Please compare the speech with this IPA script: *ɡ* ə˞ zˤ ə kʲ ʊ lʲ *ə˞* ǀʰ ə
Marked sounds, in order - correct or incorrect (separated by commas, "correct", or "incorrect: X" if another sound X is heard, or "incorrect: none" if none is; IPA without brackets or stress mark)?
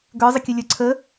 correct, correct